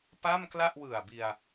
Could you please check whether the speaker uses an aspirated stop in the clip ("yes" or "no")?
no